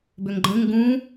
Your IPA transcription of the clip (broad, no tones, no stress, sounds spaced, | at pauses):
b ʏ ŋ ɡ͡ǃ ə̃ ŋ ɡ ũ